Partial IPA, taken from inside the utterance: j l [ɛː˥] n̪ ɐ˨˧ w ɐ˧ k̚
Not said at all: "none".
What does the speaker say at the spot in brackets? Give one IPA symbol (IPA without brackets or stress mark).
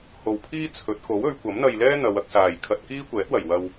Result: ɛː˥